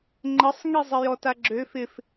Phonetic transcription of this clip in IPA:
ŋ͡ǃ ə sˤ ŋ i zˤ ɪ j ɔ t a ɡ͡ǁ ø f ɪ f

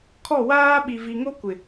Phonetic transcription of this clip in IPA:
kʰ ɔ˦˨ w aː˦ ɓ i˨ v i˨ ŋ o˦ kʷ ɪ˨

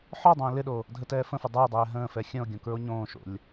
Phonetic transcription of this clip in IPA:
ħ ɔ dˤ ə̃ː l ɪ ɗ o | dʱ ə t ɛː f ə̃ f ə dˤ ɛ e̯ dˤ ɛː ɦ ə̃ː f ɛ xʲ ə̃ o̯ ɡʲ õ k ɹ o ɲ õː ʃ o̰ lʲ

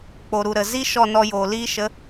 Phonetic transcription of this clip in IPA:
k͡p o˨ ɾ u˨ ɾ ə˨ z i˦ ʃ ɔ˦˨ n ɔ˧ j oː˨ l iː˦ ʃ ə˨˦

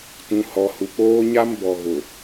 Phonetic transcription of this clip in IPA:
t ũ˨ h ɔ˨ h u˨ k͡p oː˦ ɲ a˦ m b ɔ˨ ɣ ʊ˨

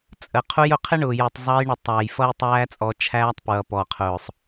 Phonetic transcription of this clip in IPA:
t͡sʼ ə˨ qʰ u˧ j ʊ˨ qʰ ɪ˦ ɳ ʊː˨ j ə˞˨ tˤ zˤ ɑ˧ j ɳ ə˨ tˤ æ˨ j f ʌ˦ j tˤ æː˦ t͡sʼ ɔ˧ t͡ʃʰ æː˦ tˤ p ɹ ʌ˨ p ɔ˨ qʰ ʊː˨ sˤ

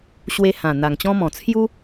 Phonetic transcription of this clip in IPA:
ɕ w e˧ h ã˨˩ n̪ a˨˩ ŋ t͡ɕ ɔ̃˦ m ɔ̃˨˩ t͡sʰ j u˦

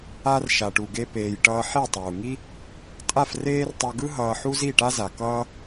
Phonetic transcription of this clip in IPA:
a˧ r ʃ a˨ ʈ u˨ ɡ e˧ p eː˧ j ʈ ʌː˦ ħ e˦˨ tˤ uː˨ ŋ i˦ | tʼ a˦˨ f r eː˦ r tˤ u˧ ɡ ɯ˦ ɦ ʌː˧ ħ u˦ z i˦˨ ʈ a˦ z a˨ k ʌː˦

